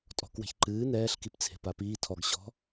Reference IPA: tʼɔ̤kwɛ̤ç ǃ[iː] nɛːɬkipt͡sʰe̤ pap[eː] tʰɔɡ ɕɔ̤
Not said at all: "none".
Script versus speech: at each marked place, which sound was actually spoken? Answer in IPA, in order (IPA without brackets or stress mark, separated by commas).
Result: ɨː, iː